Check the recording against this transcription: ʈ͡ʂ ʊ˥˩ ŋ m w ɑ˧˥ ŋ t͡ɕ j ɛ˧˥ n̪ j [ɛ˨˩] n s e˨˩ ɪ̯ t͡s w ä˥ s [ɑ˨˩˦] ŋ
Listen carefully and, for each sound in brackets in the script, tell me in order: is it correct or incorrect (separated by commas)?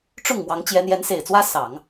incorrect, correct